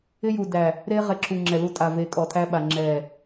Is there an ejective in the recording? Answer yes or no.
yes